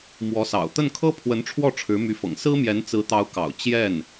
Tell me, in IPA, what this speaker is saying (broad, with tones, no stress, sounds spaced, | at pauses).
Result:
m w ɔ˧˥ s ɑ̰˨˩ ʊ̯ t̪ ə˥˩ n kʰ ɤ˥ pʰ w ə˧˥ n ʈ͡ʂʰ w ɔ˥˩ ʈ͡ʂʰ ɻ̩˧˥ m y˧˥ f ɤ̰˨˩ ŋ s ɹ̩˥ m j ɛ˧˥ n t͡s ɹ̩˧˥ t̪ ɑ˧˥ ʊ̯ k ɑ̰˨˩ ʊ̯ t͡ɕ j ɛ˥˩ n